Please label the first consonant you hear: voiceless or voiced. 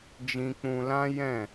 voiced